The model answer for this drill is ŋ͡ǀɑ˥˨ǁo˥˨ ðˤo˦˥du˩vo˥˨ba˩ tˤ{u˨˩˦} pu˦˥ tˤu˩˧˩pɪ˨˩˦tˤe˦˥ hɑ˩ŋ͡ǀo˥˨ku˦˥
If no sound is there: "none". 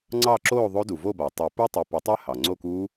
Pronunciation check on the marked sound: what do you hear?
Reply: y˨˩˦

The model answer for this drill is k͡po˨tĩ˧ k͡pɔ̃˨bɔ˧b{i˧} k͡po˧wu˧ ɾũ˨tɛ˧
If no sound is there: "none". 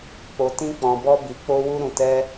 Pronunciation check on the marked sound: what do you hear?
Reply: i˨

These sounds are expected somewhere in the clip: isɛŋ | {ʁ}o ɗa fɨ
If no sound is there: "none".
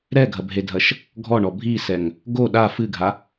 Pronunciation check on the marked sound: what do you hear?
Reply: ɡ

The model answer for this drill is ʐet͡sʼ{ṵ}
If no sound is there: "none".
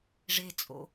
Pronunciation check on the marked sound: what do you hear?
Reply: o̰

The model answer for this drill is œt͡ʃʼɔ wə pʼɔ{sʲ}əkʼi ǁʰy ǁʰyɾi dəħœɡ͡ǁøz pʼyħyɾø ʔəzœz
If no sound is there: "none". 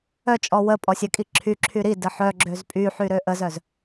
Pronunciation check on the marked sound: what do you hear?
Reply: sʲ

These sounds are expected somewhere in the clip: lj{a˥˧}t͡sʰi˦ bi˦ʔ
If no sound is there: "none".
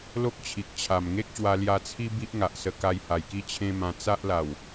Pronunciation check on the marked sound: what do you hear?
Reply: a˧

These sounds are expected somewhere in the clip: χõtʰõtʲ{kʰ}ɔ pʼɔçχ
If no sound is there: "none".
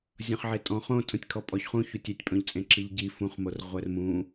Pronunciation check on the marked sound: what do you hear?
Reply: kʰ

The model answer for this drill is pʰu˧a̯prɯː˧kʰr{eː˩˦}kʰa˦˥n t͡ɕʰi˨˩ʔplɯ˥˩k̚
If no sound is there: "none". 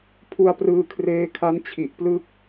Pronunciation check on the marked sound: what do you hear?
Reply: eː˦˥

